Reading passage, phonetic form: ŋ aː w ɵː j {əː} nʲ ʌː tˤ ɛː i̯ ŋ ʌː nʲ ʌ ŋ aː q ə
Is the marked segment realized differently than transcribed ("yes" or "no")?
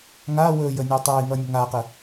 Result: no